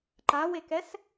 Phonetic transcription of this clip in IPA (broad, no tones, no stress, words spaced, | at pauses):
ǃawekɛs